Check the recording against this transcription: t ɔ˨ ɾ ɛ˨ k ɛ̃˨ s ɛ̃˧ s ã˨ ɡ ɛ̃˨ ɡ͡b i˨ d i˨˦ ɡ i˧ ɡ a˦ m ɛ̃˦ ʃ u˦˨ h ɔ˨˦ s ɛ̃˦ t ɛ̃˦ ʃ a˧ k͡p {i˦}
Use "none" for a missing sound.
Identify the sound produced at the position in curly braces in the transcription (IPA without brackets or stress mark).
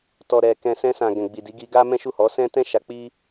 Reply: i˦